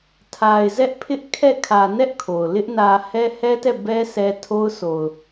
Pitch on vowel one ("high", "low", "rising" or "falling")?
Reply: low